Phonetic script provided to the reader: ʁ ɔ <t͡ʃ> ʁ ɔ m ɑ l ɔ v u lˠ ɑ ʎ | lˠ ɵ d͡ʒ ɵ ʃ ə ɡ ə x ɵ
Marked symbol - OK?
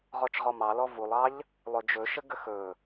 yes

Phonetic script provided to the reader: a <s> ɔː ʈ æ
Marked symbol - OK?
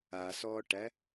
yes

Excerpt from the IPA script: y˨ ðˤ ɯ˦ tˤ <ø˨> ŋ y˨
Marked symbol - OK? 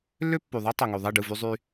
yes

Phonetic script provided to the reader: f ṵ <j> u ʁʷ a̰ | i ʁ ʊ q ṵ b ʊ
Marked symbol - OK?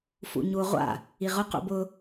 no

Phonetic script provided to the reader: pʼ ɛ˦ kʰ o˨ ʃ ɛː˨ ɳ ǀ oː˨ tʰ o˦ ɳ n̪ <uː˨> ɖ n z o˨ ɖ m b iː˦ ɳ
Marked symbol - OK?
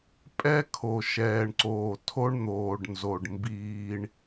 no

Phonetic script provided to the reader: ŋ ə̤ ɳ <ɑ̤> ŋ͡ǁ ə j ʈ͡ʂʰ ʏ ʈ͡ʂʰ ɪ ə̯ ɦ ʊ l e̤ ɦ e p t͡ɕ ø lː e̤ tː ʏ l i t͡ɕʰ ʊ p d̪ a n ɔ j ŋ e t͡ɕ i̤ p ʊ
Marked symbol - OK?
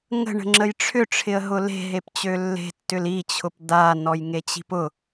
no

